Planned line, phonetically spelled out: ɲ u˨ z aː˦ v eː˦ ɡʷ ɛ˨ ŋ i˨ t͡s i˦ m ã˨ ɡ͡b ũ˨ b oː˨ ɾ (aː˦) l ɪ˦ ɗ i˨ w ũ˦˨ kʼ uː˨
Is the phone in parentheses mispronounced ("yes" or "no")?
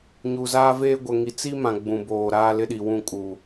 no